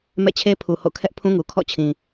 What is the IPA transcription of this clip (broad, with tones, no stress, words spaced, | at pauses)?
mɛ̰˦˨t͡ɕʰe˦pʰu˨ ho̰˦˨ kʰɛ˦ʔpʰũ˦ŋu˨ kʰɔ̰˦˨t͡ɕʰĩ˨